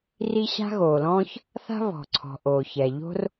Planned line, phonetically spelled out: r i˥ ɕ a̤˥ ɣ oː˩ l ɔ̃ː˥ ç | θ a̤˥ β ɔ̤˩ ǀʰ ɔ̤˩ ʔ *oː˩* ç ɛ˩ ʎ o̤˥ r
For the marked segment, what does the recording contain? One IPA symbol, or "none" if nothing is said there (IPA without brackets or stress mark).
oː˩